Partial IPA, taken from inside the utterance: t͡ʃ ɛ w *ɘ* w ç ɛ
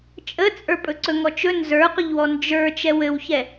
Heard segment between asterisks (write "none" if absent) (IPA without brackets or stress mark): ɘ